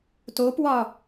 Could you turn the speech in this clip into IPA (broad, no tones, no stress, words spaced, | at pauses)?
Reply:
topwɒ